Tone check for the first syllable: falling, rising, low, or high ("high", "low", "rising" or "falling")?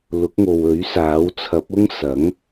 rising